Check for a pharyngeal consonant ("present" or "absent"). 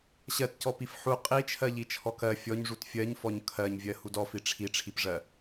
present